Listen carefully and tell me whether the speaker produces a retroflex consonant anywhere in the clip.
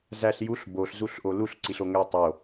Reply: no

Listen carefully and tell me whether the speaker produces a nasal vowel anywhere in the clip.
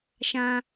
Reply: yes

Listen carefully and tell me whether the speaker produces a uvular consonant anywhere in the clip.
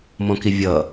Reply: no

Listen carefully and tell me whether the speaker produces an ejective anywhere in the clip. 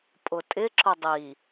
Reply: yes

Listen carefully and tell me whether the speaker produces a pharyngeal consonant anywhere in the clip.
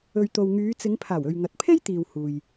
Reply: no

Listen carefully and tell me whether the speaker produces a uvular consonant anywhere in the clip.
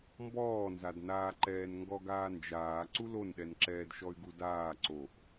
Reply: no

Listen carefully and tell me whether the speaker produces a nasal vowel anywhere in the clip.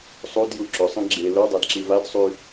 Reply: yes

